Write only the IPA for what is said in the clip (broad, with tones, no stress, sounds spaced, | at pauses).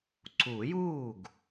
ǀ uː˨˩˦ j uː˥˩ ɡ